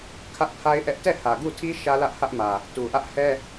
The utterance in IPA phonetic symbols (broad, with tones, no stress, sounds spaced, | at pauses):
kʰ ä˦ ʔ pʰ a˦ ɪ̯ ʔ ɛ˦ ʔ t ɛ˦˨ h ä˨ ɡ u˦˨ tʰ i˦ ʃ ä˦ l ä˦ ʔ h ä˦ ʔ m ä˨ | t u˨ ʔ ä˦ ʔ h ɛ˦